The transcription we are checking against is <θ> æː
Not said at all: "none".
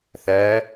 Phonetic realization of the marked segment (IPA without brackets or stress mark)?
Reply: θ